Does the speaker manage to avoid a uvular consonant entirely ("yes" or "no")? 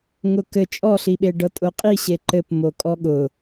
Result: no